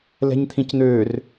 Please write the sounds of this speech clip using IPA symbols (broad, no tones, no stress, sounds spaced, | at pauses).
l ɛ̤ ɲ t̪ʰ ĩ c n̪ øː r